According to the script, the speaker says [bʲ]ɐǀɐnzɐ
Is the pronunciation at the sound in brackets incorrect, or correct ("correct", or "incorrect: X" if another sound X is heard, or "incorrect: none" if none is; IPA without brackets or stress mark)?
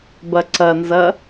incorrect: b